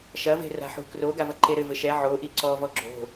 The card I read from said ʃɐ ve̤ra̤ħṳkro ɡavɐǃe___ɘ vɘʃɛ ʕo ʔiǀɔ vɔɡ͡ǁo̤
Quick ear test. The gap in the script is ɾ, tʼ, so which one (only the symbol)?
ɾ